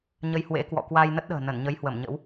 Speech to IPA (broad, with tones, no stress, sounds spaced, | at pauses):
ɲ ə˧ j h w ḛ˧˥ k w ɔ̰˧˨ k w a˧ j n ə˦˥ t̚ ɗ ə̤ː˨˩ n ə˧˩ n ɲ ə˨˦ j h w ə˧˩ m ɲ ə̰˧˥ w